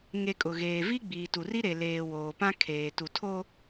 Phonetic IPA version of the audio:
ŋ e˨ kʼ ʊ˨ ɣ eː˨ v i˦ ɡ͡b iː˨ t u˨ r i˦ ɾ e˨ l eː˨ w oː˨ p ã˦ kʰ eː˨ t u˨ tʰ o˦

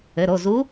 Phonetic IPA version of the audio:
ɘ˩˧˩ ɾ o˩˧˩ z u˧˥

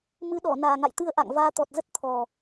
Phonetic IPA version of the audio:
m ɨ˨˦ ɗ ɔ˧˩ n aː˨˩ ŋ a̰˧˨ j t̪ ɨ˧ ə̯ ʔ a̰˧˨ ŋ v aː˧ t̪ ɔ˨˩ t̚ z ə˦˥ t̚ t̪ʰ ɔ˨˩

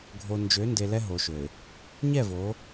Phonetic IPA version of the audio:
ɡʱ o˨ n d͡ʒ ø˨˦ n d e˨ l ɛ˦ ɦ o˨ ʃ ø˨ ɪ̯ | ɲ ɛ˦˨ v o˨˦

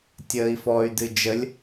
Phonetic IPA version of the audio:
tʲ əː i̯ f ɔ y̯ d ɨ d͡ʒ ə lʲ

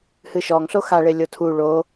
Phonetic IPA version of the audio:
h ɨ ʃ ɔ ŋ ɬ o x a ɭ e lʲ o tʰ u ɭ o

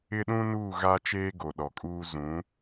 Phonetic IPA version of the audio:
ɪ˦ ɗ ũ˦ n uː˦˨ ɣ a˦ t͡ʃ eː˦ ɡ o˨ ɗ ɔ˨ kʼ uː˦ z ũ˨˦

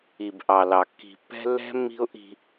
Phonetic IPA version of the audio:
i˨ b ʔ ɑ˨ l ɑ˨ kː i̤˨ pː ɛ̤˦ lː ɛ̤˦ mː i̤˦ ʊ̯ ʔ i̤˦

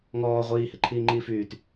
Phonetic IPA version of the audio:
ŋ ɔː ʁʷ iː h e ǃʰ iː ŋ͡ǃ iː f yː t

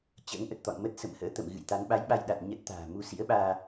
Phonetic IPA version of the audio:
t͡ɕ ə̰ː˧˥ ŋ ʔ ə˨˩ t̚ t̪ ɔ̰˧˨ n m ə˦˥ t̚ s ə̰˧˨ m h ə̰ː˧˥ t̪ ə̰˧˨ m ɣ ɨ̰˧˨ j t̪ a˨˦ n ɓ a˨˦ j ɓ a˧ j ɗ a˨˩ t̚ ɲ ə˦˥ t̚ t̪ a̤ː˨˩ m u˧ s ḭ˧˥ ə̯ ɓ aː˧

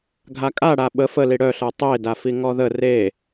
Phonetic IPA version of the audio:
ɡʱ a kʼ a ɽ a ɓ ə f ə l i ɽ œ ɬ ɤ tˤ e d a f i ŋ ɔ ð ə r e

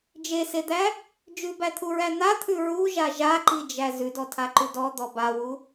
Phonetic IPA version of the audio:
d͡ʒ e s e d̪ æ | d͡ʒ ʉ b æ t̪ʰ u ɹ æ n̪ a t̪ʰ ʉ ɹ u ʒ a ʒ a ǃ i d͡ʒ æ z ʉ d ɔ tʰ a ǃ ʉ d ɔ d̪ ɔ b a w u

